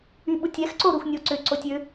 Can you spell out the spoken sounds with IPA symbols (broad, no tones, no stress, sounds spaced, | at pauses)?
y ɓ u tʲ ɛ x ǀ o ɾ u x nʲ o ǀ ʏ ǀ o tʲ ʏ